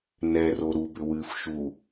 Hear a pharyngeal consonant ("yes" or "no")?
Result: no